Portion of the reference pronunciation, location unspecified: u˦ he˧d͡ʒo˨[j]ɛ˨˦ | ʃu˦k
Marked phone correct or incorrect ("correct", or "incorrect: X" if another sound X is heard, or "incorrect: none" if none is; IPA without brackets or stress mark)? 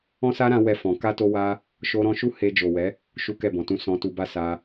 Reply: incorrect: w